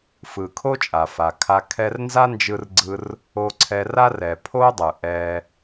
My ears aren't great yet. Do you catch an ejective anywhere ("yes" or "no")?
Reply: yes